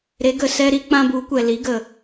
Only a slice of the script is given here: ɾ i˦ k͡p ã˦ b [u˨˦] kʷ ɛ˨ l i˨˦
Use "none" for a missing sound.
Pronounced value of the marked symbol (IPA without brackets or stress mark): u˨˦